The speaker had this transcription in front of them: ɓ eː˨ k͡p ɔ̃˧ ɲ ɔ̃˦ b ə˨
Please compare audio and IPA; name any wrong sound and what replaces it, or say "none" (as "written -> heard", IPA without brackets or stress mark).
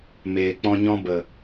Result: ɓ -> m